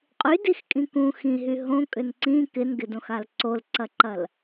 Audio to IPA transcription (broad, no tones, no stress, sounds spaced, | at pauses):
qʼ y d i x kʼ ĩ k ũ x ĩ ɦ y ɦ õ kʼ ʏ n ǀ ĩ k ɪ n ɡ ɪ d õ x a l ǀ o l ǀ ɐ ǃ ɐ l